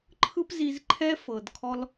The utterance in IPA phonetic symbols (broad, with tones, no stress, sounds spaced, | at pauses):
ǃʰ ɯ˥ p z i˧ z ǃʰ ɛ˥ f ɤ˩ d kʰ ɔ˧ l